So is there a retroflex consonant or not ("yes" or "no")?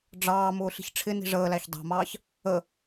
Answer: yes